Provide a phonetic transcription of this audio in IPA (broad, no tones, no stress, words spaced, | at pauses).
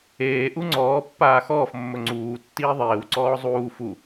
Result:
eːʔu ŋ͡ǀɔːpːaː xɔːfmːɵ ŋ͡ǀuː tːiːðˤeːwǀɔː zˤuː fu